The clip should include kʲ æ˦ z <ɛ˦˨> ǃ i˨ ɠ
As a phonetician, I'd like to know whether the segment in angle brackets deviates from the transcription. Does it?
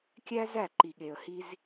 yes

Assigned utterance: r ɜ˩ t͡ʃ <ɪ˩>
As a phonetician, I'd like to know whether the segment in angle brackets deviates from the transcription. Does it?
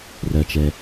yes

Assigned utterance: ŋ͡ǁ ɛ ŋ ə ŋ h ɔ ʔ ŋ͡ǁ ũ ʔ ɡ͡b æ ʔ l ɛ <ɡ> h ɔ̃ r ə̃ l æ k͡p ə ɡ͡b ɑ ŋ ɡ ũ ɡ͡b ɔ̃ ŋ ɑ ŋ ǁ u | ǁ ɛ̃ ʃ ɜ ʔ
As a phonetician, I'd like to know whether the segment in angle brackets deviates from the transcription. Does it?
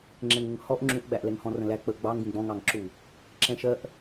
yes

